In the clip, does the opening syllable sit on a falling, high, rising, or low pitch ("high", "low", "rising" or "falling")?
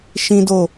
high